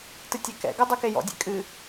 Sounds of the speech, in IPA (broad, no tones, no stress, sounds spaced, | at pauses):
t ɨ tʲ ɛ k ɛ̰ ɡ œ dˤ o k e j ɔ̰ dʲ ḛ kʼ ɨ